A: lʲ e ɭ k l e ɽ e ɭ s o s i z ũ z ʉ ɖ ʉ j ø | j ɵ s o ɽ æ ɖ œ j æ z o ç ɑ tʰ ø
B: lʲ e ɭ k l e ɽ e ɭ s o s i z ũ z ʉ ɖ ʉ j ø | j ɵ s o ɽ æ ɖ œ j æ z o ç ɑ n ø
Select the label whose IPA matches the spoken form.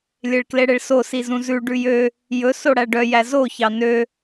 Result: B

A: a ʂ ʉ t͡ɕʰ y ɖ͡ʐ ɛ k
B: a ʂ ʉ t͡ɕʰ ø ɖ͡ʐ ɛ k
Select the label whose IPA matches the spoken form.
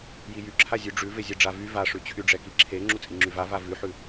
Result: A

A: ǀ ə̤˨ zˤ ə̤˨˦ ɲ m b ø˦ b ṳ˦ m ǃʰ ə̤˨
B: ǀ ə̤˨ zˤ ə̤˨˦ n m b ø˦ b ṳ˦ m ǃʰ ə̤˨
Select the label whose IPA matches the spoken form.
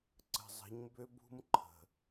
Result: A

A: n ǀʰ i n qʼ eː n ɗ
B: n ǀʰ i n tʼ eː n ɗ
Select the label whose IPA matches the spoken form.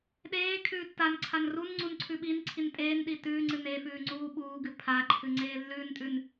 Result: B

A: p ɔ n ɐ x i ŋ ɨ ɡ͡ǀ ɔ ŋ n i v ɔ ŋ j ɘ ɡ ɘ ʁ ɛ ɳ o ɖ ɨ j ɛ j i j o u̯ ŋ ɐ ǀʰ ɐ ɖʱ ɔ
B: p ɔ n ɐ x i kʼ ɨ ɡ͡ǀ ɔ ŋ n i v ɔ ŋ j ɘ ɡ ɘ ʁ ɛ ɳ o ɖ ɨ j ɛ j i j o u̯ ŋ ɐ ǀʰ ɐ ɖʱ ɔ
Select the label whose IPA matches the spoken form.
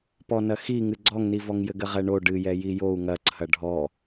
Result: A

